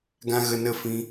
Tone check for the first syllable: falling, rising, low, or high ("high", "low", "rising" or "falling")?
high